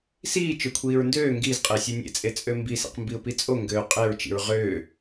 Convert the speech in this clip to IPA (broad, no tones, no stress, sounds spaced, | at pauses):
s iː t͡ʃ ø kʷʰ iː ɹ n d øː ŋ ɡ i z qʼ e sʲ o nʲ ḛ t͡sʼ e t͡sʼ ø m b i s ḛ q m b i ʊ̯ p i t͡sʼ o ŋ ɡ øː qʼ e ɹ t͡ʃ ḭ ɹ ʁ øː